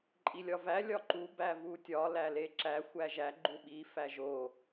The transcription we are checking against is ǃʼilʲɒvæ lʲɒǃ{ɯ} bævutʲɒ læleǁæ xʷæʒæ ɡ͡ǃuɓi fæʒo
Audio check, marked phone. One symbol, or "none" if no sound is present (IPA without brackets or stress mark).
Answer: u